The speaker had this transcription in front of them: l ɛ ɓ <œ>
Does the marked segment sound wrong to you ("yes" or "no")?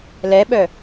no